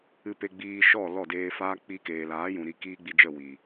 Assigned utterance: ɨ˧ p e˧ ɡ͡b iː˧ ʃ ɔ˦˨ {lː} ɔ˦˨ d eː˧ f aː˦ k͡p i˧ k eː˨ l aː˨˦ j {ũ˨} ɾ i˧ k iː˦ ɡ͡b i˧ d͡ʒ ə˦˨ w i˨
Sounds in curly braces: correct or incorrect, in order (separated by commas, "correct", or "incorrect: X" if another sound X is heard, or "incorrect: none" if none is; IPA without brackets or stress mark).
incorrect: l, correct